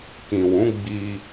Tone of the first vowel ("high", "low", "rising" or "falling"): low